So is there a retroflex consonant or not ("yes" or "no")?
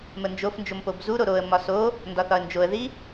no